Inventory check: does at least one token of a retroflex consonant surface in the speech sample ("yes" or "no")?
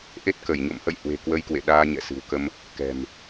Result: no